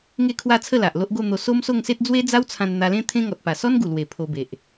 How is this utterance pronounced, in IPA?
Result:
ŋ e˥˧ kʰ w a˥˧ t͡sʰ ə˥˧ l a˨ ʔ l o˦ ʔ ɡ o˥˧ n̪ o˧ s o˦ m s o˥˧ ŋ s e˦ t̚ d͡z w e˦ d͡z a˦ w t͡sʰ ã˧ n n̪ a˧ l ẽ˦ t̪ʰ ẽ˦ ŋ ɔ˨ t̚ p a˨˩ s ɔ˦ n ɡ u˨˩ l w e˨˩ pʰ o˧ b e˨ ʔ

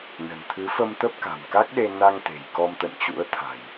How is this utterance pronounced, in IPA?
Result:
n ə̤˨˩ n t̪ʰ ɨ˨˦ f ə˧ m t̪ ə˦˥ p̚ k a̤˨˩ m k a˦˥ k̚ ɗ e˧ n a˧ ŋ t̪ e̤˨˩ j k ɔ˧ m t̪ ə̰˧˨ n t͡ɕ ṵ˧˥ ə̯ t̪ʰ a̤˨˩ j

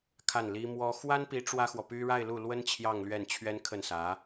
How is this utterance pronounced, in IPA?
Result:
kʰ a˥˩ n l i˥ m w ɔ˥ x w a˥ n p i˧˥ ʈ͡ʂ w ä˥ x w ɔ˨ p y˥ ɻ a˥˧ ɪ̯ l u˥˩ l w ə˥ n t͡ɕʰ j ɑ˥˧ ŋ l ɥ ɛ˥˩ n t͡ɕʰ ɥ ɛ˥ n kʰ ə˥˩ n s ä˧˥

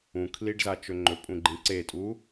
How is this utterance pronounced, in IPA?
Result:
ũ kʰ l i ɖ z a t͡ʃ ɵ ŋ͡ǃ ɵ pʼ ũ ɡ͡ǃ ĩ ǀ e tʼ u

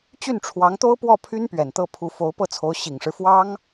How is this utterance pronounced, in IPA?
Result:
t͡ɕ y˥˩ n ʈ͡ʂʰ w ɑ˧˥ ŋ t̪ o˥ ʊ̯ p w ɔ˥˩ pʰ y˥ n p ɥ ɛ˨˩ n t̪ ɤ˥˩ pʰ u˧˥ f o˧˥ ʊ̯ p ɤ˥˩ t͡sʰ o˧˥ ʊ̯ ɕ i˨˩ ŋ ʂ ɻ̩˦ f w ɑ˥ ŋ

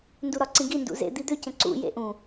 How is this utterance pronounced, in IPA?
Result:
n d u ɾ ɒ ǀ ĩ ɡ i n d ṵ z ḛ d̪ i d̪ ø c ə̃ ǀ ṵ j ḛ ʔ ũ

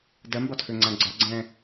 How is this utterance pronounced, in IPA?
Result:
d ɜ m b ɒ tʰ ø ŋ͡ǀ ã ɡ͡ǀ ɒ ɡ͡ǀ ɛ̃

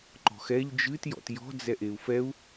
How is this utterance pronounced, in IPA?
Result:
ǃ ɔ̤ x ɛ ʎ d͡ʒ ɨ t j ɔ̰ t j ɔ̤ d͡z ɛ ʔ e u̯ f ɛ u̯

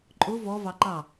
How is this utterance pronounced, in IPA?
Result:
ǃʼ ʊ v ɔ v ɑ ǃ ɑ

